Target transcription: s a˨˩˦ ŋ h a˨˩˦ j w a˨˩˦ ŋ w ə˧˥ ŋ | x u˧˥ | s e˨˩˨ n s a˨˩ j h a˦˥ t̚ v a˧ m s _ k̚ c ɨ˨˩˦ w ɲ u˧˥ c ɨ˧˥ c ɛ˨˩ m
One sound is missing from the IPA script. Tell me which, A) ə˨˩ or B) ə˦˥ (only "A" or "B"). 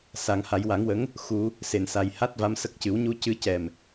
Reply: B